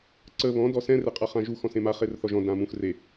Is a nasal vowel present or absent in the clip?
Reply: present